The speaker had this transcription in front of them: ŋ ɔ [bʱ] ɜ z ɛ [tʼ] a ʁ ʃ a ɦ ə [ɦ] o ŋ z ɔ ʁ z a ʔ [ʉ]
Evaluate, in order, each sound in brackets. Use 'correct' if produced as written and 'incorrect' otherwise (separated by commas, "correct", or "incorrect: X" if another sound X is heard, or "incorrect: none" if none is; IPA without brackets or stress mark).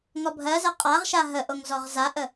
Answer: correct, incorrect: qʼ, incorrect: ʔ, incorrect: ə